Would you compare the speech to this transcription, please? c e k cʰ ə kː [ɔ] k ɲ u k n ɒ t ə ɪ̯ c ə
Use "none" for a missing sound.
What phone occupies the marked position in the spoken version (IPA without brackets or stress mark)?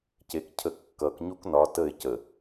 ʌ